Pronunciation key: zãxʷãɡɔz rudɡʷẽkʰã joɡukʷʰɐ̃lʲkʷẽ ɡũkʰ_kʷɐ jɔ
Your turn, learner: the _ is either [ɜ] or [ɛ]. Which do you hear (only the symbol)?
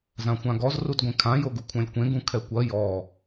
ɛ